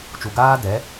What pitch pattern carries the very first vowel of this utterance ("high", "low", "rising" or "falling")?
low